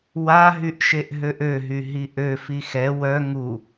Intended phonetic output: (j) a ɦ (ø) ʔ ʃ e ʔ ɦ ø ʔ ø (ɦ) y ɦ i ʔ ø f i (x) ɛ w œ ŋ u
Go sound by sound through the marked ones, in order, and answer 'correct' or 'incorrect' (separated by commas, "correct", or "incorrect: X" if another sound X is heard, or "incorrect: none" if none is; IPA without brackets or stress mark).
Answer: incorrect: w, incorrect: y, correct, correct